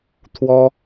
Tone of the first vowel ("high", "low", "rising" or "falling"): high